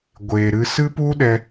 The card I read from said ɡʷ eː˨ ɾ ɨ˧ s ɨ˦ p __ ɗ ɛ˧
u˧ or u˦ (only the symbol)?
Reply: u˦